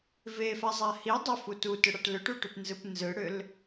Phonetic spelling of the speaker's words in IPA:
v e f a zˤ a h i dˤ ʏ f u t u t ʏ ɽ a ʈ l ʏ ʈ u ʈ ʏ p n z ɯ p n z ɯ ɽ ʏ l

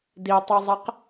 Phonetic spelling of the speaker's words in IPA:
d i tˤ ɛ zˤ ɛ q

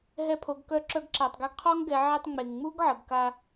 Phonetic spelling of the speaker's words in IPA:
ɦ ɛ˧ pʰ o˩˧ ɡ k œ˧˥ ǁ œ˧ ɡ ǁ a˩ tˤ ɡ ɛ˧ ɡ qʰ ɔ˥ ŋ ɡ ɛ˩˧ ʕ e˧ tˤ ŋ͡m e˩ ŋ ŋ͡m u˥ ɡ ʕ ə˩ ɡ k a˧

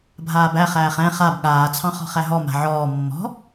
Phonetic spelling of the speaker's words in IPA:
bʱ aː b æ χ æː χ ɛ̃ χ a b ɠ aː t͡sʰ ɑ̃ χ ɔ̤ χ æ ɦ ɔ m a̤ ʕ ɔː mː ɔ̤

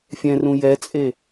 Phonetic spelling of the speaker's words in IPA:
fʲ ɛ̃ r ũ j ɛ t͡sʼ e

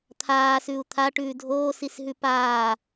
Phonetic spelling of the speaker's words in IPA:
t̪ʰ aː s ʉ u̯ t̪ʰ a ʈ ʉː dʱ oː s i s ɦ ʉ p aː

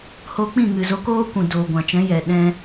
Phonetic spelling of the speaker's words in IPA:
h o˧ k͡p ĩ˦˨ ŋ ɨ˨ z o˧ k oː˦ kʷ ũ˨ d oː˨ ɡʷ ã˨ t͡ʃ ɛ̃˨˦ j ɛ˨ ɗ ɛ̃˧

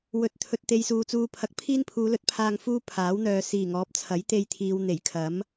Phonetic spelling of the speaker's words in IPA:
w ɵ˨˥ t̚ t̪ʰ ɵ˨ t̚ t̪ e˧ j s uː˨ t͡s uː˨ pʰ ɐ˨ k̚ pʰ iː˥ n pʰ uː˨˧ l ɵ˨˥ t̚ pʰ aː˧ ŋ f uː˥ pʰ aː˨˥ w n̪ œː˨ s iː˨˩ ŋ ɔː˨˥ p̚ t͡sʰ ɐ˨˥ j t̪ e˧ j t̪ʰ iː˨ w n̪ e˨˩ j kʰ ɐ˨˥ m

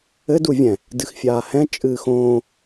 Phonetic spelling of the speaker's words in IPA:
ɘ d u vʲ ɛ̃ | d ɨ x fʲ aː h ɛ̃ t͡ʃʼ ɨː x õː

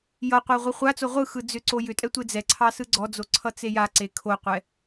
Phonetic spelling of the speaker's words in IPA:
j ʌ qʷ ɑ ʁʷ i χʷ a t͡s o ʁʷ ɯ x ɯ d͡z ʏ ǀ o j ʏ tʼ ɛ tʷ e d͡z ɛ ǀʰ ɑ s ɯ ɡ͡ǀ ɔ d͡z o ǀʰ ʌ t͡s e j a ǀ e kʰ o qʷ ɛ

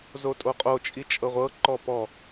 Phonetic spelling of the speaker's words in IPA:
z o tʼ o qʼ o t͡ʃʼ i t͡ʃʼ ɤ ʁʷ ɤ ǃ ɔ p ɔ

